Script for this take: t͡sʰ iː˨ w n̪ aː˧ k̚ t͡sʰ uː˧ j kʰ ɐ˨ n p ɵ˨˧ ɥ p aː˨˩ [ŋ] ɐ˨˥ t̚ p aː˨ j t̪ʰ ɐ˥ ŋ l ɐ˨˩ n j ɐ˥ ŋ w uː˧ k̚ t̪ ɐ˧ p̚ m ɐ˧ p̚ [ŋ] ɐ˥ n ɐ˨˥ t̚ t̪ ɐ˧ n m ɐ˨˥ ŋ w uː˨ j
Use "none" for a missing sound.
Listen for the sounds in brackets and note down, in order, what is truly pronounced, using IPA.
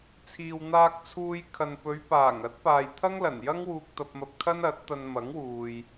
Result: ŋ, kʰ

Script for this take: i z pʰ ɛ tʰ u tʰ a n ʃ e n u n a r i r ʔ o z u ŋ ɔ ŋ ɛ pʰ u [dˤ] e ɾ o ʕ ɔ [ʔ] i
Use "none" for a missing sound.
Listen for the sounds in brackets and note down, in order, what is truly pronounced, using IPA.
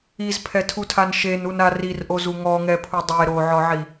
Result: dˤ, ʕ

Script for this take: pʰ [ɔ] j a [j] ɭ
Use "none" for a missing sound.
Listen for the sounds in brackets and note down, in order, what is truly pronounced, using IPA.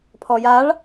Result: ɔ, none

